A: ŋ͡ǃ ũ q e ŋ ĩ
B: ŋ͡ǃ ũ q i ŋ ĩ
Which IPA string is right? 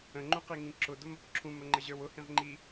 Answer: B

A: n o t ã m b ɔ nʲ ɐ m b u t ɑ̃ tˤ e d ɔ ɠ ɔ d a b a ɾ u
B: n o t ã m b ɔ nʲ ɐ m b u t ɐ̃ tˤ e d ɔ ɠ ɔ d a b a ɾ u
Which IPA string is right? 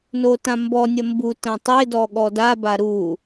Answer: B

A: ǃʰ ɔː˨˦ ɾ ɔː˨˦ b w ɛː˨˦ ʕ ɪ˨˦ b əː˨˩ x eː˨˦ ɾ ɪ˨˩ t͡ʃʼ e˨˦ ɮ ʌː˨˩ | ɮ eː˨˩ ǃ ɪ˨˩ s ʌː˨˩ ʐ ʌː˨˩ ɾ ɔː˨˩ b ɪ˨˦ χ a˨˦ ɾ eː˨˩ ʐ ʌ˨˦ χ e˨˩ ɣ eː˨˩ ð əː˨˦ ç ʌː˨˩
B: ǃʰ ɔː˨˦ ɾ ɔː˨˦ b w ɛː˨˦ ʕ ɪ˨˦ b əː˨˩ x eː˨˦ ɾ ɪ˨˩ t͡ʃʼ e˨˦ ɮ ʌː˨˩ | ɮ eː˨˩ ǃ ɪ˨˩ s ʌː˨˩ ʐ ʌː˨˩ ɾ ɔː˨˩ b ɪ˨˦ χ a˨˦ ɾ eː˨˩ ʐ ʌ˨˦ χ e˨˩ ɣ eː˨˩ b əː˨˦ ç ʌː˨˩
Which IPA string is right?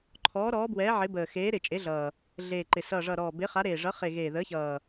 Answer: A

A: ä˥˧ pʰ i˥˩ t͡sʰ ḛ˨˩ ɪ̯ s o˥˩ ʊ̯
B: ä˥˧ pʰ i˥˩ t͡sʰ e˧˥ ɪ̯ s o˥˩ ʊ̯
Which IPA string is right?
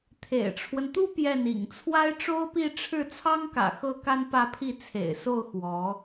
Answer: A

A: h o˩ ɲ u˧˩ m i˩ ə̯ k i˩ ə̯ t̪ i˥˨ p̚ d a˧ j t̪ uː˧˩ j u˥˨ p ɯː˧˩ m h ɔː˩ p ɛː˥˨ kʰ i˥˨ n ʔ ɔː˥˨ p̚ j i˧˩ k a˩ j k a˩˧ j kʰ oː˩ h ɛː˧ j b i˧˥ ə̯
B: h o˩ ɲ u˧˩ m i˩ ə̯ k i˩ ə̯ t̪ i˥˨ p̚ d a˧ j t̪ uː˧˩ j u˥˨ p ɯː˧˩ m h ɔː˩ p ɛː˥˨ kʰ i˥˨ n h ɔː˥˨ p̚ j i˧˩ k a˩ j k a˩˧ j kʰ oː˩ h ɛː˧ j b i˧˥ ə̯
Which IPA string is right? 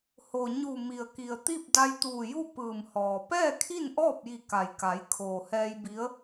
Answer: A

